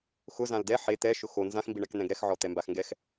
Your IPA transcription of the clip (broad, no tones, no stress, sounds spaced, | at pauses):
x ʊ z ã l d ɛ ħ e t̪ ɛ ʃ ʊ x o n z ã x m b i ɳ ɛ k n̪ ɛ̃ ɡ ɾ ɛ x ʕ ɔ t̪ ɛ m b a x ŋ ɡ ɛ x